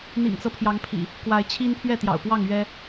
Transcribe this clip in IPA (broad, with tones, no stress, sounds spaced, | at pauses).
n̪ ḭ˨˩ ŋ t͡s ɤ˦ pʰ j ɑ˨˦ ŋ pʰ ḭ˨˩ | k w a˨˦ ɪ̯ t͡ɕʰ i˦ n pʰ ɥ ɛ˥˨ t̪ j ɑ̰˨˩ ʊ̯ p w ɑ˥˨ ŋ ɥ ɛ˦